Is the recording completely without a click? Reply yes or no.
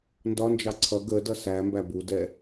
no